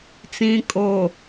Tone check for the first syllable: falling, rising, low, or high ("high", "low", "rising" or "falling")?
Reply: low